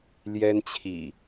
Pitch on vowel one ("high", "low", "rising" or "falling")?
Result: high